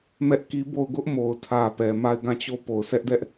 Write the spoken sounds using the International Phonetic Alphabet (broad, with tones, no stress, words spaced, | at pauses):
mɛ˦ʔki˦bo˦˨ʊ̯ ɡʊ˦ʔmo˨ʊ̯ tʰä˨ pɛ˨ ma˦˨ɪ̯ɡã˦˨t͡ɕo˦˨ po˨ʊ̯sʰɛ˦ʔdɛ˦ʔ